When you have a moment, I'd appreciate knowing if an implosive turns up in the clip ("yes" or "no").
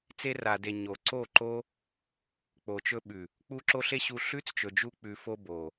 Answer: yes